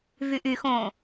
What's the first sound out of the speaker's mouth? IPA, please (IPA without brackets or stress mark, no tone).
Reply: v